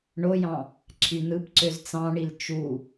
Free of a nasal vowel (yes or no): no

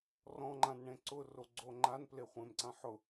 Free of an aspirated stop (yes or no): yes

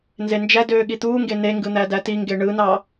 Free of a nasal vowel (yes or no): yes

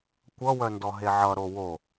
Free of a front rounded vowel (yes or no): no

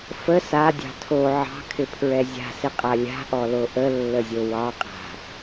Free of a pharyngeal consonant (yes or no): no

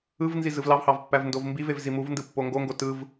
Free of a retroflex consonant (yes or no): yes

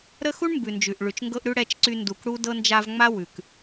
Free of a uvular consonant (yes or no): yes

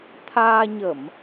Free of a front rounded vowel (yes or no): yes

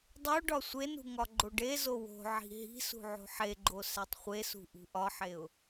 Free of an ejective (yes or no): yes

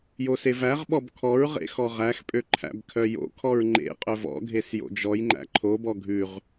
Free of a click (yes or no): no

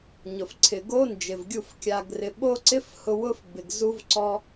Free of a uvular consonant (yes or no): yes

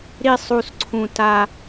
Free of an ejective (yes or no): yes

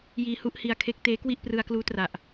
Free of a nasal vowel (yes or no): yes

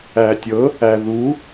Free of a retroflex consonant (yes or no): yes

